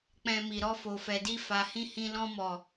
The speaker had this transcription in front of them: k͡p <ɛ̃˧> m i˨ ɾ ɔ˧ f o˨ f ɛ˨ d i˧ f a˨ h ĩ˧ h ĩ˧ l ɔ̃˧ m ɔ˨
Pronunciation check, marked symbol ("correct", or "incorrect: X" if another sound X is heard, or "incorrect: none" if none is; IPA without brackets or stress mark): correct